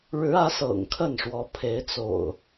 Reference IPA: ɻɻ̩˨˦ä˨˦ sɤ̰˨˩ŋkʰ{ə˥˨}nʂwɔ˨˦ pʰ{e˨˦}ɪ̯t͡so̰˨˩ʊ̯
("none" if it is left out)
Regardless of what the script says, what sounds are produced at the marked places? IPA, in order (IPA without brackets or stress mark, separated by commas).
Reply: ə˥˨, e˨˦